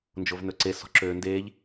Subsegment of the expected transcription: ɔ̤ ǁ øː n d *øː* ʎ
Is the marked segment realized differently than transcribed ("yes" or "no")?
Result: yes